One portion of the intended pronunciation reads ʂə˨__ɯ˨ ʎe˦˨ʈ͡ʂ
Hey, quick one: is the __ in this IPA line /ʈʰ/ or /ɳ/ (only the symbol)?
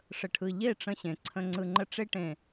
ʈʰ